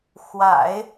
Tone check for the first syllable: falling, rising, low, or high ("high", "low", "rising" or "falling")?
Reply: low